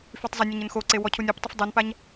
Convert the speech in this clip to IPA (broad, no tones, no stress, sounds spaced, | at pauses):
f y tˤ zˤ ə nʲ ə ɲ ə n x o ǀ e w ɔ cʰ u nʲ u p tˤ ə f dˤ u n p a ɲ